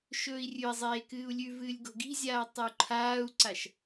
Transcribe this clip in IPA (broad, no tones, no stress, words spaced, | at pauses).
ʃɵːi̯rʲʉi̯zˤeː kɨːu̯lʲʉvɨːlʲ ɡo̤ɡi̤zʲaː tˤɨu̯ǃʰaːu̯ǀaʃ